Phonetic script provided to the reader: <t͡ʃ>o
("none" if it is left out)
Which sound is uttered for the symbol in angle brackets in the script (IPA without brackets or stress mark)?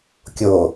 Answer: kʲ